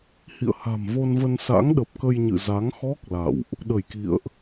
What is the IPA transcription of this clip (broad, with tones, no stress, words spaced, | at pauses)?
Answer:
hḭ˧˨ə̯ha̤˨˩mvo˧nvə˧n sa̰˧˥ŋɗə˨˩p̚kə˧jɲɨ̰˧˨ za˨˦ŋxɔ˦˥k̚ la̰˧˨wʔ | ɗə˧˩jkḭ˧˨ə̯ʔ